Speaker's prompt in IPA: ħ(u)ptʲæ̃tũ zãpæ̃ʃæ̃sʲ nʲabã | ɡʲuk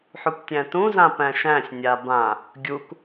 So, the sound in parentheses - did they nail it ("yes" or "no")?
yes